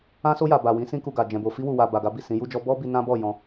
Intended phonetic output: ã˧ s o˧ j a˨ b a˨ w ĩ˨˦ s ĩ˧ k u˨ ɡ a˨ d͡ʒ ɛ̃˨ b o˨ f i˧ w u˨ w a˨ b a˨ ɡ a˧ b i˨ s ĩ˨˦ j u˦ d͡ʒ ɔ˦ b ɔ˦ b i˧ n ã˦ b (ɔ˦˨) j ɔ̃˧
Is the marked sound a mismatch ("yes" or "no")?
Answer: no